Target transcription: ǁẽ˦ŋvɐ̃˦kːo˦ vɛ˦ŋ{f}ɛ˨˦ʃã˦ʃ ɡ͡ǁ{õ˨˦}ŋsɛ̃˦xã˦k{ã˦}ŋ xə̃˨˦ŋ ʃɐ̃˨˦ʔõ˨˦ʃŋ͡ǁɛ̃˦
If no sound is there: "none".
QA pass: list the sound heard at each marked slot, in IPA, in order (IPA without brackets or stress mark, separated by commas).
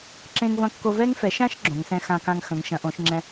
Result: f, õ˨˦, ã˦